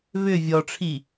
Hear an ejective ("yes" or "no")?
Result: no